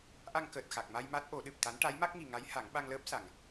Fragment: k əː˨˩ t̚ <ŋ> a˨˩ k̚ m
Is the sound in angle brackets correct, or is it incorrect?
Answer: incorrect